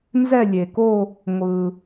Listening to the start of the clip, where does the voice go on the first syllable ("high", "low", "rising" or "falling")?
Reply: falling